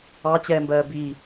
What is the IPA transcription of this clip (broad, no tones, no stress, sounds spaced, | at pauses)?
ɑ t͡ɕ ɛː m b ɜː b i